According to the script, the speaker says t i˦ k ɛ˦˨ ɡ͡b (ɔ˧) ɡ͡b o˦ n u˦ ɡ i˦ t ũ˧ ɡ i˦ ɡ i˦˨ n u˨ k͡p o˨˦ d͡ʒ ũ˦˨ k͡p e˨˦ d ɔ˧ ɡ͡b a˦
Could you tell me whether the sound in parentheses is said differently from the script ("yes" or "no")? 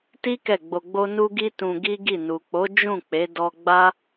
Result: yes